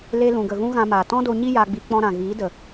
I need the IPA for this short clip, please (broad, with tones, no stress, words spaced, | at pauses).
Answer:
le˧lũ˨ɡə˨ ɣũ˦ɣã˧maː˨ tɔ̃˦do˧ɲi˦ ja˧ɡ͡bi˧ k͡pɔ̃˧ɾã˨ɣiː˨˦ də˨